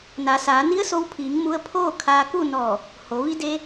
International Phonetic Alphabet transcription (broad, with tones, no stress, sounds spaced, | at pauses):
n a˩˧ s aː˩˧ n i˧˥ ə̯ s o˧ w pʰ iː˩˧ ŋ m u˧ ə̯ pʰ oː˥˨ kʰ aː˧ k u˥˨ n ɔː˧˩ | h o˩˧ ʋ i˧ d eː˧